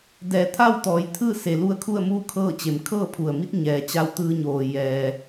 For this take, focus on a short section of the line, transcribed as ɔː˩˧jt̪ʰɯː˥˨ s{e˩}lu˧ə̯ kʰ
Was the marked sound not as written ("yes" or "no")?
no